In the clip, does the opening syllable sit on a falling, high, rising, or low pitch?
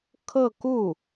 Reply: falling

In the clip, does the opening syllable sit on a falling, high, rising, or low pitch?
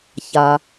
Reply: low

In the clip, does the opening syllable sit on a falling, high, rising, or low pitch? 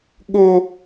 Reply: high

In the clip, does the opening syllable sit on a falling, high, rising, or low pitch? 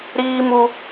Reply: high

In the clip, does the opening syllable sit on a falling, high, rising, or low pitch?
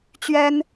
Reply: high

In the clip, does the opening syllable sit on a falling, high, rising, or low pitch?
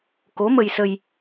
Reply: rising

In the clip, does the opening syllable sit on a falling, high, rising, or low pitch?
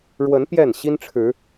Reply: rising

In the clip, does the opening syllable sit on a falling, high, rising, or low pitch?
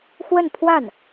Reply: falling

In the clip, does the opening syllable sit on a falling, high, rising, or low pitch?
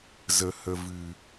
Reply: low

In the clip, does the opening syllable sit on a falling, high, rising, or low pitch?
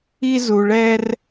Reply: high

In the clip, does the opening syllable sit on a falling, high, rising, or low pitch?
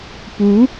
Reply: rising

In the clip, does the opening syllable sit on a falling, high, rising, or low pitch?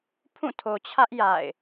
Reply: falling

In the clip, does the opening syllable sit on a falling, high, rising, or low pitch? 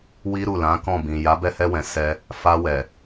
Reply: high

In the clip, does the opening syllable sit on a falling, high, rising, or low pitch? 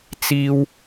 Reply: high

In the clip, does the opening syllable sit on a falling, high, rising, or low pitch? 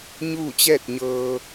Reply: falling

